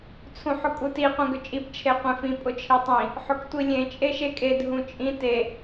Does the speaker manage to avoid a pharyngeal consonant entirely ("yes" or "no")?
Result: no